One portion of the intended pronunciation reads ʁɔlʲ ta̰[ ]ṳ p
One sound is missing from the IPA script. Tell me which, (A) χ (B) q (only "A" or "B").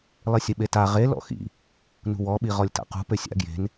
B